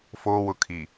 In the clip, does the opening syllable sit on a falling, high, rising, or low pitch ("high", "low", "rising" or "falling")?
low